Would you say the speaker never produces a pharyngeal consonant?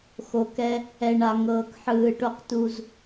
no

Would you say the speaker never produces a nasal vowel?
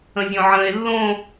no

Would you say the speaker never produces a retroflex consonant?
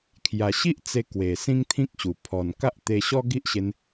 yes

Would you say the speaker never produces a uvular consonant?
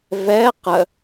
no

